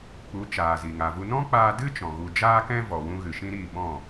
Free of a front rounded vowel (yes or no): yes